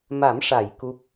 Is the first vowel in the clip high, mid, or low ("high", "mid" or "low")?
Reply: low